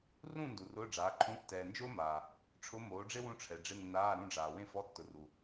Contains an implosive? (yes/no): no